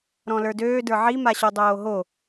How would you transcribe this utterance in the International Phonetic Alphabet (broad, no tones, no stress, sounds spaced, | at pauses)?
ɾ ɔ̃ l ə˞ d øː d ə˞ ʕ i m a ɕ o dˤ oː ɦ o